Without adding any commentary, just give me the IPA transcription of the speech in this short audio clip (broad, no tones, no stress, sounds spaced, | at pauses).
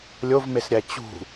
lʲ o v m e s ɾʲ æ t͡ɕ ṳ